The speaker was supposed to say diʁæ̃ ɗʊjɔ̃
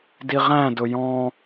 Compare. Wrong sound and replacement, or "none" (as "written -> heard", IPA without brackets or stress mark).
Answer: ɗ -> d